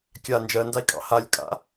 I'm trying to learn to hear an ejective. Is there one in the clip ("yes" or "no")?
yes